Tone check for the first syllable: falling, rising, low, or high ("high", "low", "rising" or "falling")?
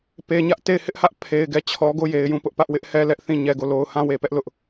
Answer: low